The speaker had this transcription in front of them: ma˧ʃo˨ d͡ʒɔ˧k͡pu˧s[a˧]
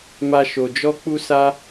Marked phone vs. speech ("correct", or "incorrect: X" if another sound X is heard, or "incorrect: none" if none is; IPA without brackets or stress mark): correct